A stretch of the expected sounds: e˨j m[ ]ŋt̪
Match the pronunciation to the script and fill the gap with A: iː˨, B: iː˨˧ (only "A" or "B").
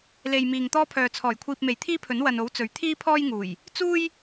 A